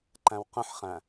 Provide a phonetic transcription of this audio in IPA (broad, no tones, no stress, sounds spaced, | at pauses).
ǃ æ̃ w q ə̃ ħ χ æ̃